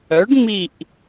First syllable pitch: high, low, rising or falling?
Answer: rising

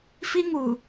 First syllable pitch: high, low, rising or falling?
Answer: high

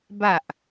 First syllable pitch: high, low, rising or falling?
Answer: low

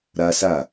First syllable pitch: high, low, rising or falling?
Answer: high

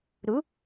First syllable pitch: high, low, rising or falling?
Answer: rising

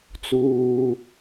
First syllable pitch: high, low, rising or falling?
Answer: low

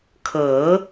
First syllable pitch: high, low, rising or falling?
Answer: rising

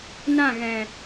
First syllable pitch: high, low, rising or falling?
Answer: falling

